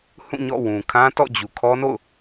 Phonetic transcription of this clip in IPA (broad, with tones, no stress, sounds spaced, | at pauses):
h ũ˦˨ ɲ ɔ̰˦˨ w ũ˨ kʰ ã˦ t ɔ̰˦˨ d͡ʑ u˨ kʰ ɔ˦ n o̰˦˨ ʊ̯